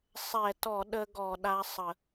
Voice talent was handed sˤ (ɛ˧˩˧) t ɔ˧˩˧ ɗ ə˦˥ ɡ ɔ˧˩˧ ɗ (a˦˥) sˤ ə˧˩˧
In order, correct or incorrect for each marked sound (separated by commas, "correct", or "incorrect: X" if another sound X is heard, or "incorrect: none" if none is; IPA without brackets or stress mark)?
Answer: correct, correct